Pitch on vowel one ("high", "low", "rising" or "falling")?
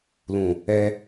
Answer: low